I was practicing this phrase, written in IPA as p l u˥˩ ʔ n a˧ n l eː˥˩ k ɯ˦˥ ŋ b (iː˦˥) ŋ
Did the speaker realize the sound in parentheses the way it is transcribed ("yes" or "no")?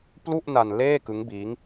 yes